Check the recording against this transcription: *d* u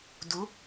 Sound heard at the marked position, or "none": d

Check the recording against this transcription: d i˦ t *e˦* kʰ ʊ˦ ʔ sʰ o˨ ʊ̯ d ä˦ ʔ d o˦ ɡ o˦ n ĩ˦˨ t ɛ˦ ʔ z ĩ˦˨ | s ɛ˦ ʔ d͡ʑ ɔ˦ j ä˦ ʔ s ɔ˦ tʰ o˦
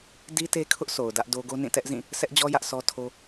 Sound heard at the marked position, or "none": e˦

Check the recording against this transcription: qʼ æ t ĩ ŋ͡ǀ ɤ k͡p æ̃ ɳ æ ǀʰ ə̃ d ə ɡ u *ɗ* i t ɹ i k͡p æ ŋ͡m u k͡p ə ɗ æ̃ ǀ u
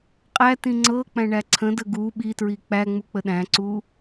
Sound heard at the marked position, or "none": ɓ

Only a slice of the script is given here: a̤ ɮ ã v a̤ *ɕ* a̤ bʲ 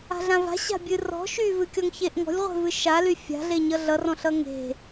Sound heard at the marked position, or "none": ɕ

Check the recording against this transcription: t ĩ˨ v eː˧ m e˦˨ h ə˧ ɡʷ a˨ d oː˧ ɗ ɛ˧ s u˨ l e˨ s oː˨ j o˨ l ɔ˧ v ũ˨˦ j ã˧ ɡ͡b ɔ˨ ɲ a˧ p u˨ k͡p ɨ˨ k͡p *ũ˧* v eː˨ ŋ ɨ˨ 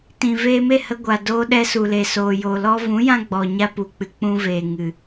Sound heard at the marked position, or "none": ũ˧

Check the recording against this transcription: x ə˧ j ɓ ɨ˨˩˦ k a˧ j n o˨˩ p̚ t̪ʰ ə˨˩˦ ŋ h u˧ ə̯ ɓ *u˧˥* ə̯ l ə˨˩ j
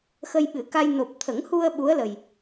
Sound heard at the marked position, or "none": u˧˥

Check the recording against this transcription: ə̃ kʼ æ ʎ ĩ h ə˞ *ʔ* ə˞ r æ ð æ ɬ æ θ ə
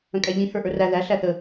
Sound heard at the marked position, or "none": ʔ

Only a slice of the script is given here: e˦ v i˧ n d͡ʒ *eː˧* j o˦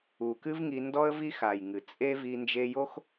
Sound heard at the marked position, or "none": e˧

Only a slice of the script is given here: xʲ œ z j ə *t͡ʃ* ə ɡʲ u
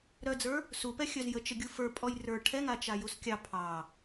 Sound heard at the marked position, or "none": t͡ʃ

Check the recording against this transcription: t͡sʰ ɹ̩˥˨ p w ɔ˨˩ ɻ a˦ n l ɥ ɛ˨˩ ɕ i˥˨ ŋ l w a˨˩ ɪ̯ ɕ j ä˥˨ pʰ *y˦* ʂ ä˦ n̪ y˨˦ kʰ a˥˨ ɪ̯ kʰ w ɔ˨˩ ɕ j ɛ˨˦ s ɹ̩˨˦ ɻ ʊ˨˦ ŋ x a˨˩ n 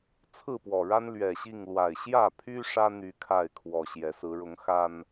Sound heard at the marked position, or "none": y˦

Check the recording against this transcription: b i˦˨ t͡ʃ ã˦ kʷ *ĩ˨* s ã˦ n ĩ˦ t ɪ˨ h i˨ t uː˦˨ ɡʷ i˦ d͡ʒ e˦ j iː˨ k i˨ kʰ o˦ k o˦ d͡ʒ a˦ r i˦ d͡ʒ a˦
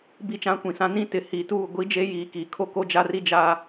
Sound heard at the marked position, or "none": ĩ˨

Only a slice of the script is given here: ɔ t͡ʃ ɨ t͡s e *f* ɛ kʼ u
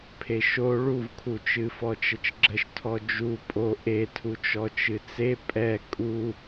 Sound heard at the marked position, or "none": pʼ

